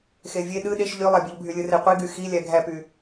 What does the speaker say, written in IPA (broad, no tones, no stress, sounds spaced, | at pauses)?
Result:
x e vʲ e ɗ ɯ ɗ e ʃ ʎ y lˠ æ bʲ u ʎ bʱ y lʲ ɯ r e qʷ i ɡ y x i lʲ æ ɡʱ æ p y